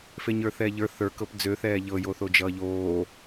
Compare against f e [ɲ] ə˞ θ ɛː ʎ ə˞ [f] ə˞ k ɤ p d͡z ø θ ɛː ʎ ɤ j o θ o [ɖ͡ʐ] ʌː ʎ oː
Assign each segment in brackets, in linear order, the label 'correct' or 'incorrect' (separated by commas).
correct, incorrect, incorrect